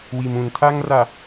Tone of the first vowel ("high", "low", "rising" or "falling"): low